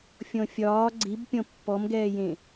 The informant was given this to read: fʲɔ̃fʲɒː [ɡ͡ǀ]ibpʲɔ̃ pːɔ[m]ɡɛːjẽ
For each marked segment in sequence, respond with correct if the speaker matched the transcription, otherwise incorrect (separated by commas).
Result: correct, correct